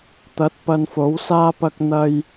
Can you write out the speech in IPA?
t̪ ɐ˨˥ t̚ p ɐ˧ n f o˨˥ w s aː˥ p ɐ˧ k̚ n̪ ɐ˧ j

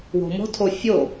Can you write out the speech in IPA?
w ɔ̤ m ɔ̤ tʰ o fʲ o

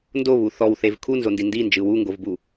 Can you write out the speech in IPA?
n d o β u θ ɔ w θ e v kʰ u n z o n d i n d i n d͡ʒ ɯ w u ŋ ɡ o v b u

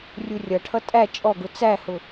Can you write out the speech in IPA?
rʲ u rʲ ʌ ʈʰ ʌ tʼ æ t͡ʃʼ ɔ ɡ ʊ t͡s æ h ʊ

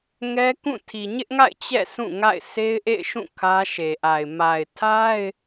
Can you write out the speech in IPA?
ŋ ɛ˦ k ũ˦˨ tʰ i˨ ɲ ɪ˦ ʔ ŋ a̰˦˨ ɪ̯ t͡ɕ ɛ̰˦˨ s ũ˦˨ ŋ a̰˦˨ ɪ̯ s e˦ ɪ̯ ʔ ḛ˦˨ ɪ̯ ʃ ũ˦˨ kʰ ä˦ ʃ e˨ ʔ a˨ ɪ̯ m a˨ ɪ̯ tʰ a˦ ɪ̯

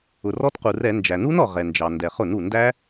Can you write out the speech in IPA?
ʊ˩ r ɔ˦˥ t q u˩ r ɛ˧˩˧ n d͡ʒ æ˩ n u˦˥ n ɔ˩ ʁ ɛ˩ n d͡ʒ ɑ˩ n d ɛ˩ χ ʊ˧˩˧ n u˩ n d æ˦˥

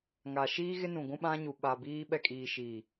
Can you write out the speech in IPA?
ŋ a˨ ʃ iː˦ ɣ ɪ˦ n ũ˨ ɡʷ ũ˦ ɓ ã˦ ɲ u˨ ɓ a˨ b iː˦ ɓ ɛ˦ kʼ iː˨ ʃ iː˨

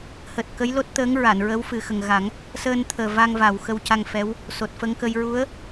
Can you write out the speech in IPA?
h əː˨˩ t̚ k ə˧˥ j l o˦˥ t̚ t̪ əː˧˥ ŋ ɹ a˨˩˨ n ɹ ə˧˥ w f ɨ˨˩ x ə˨˩ ŋ ɣ a˨˩˦ ŋ | s əː˧ n t̪ʰ əː˨˩ v a˧ ŋ v a˨˩ w x ə˧ w c a˧ ŋ f ɛ˧˥ w | s o˨˩ t̚ f ə˧ ŋ k ə˧ j ɹ u˧˥ ə̯

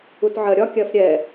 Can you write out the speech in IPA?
u t ʕ ɜ ɾʲ ɒ kʲ ɜ f ɾʲ ɛ

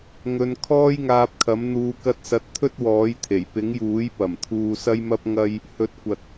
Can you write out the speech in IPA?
ŋ ɵ˨ n kʰ ɔː˥ j ŋ aː˧ p̚ kʰ ɐ˨˥ m n̪ uː˨˧ k ɐ˧ t̚ s ɐ˨˥ t̚ t̪ʰ ɵ˥ t̚ w ɔː˨˥ j t̪ʰ e˨˩ j p ɪ˨˥ ŋ j uː˨˥ j p ɐ˨˩ m t̪ʰ uː˧ s ɐ˥ j m ɐ˥ p̚ ŋ ɐ˥ j | h ɵ˨˥ t̚ kʷ ɐ˨ t̚

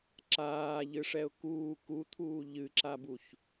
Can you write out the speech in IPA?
ǁ aː ʎ ɨ ʂ ɛ ʊ̯ k uː k u t̪ʰ uː ʎ ɨ ǁ a b u ç

